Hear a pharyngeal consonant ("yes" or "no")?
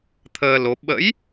no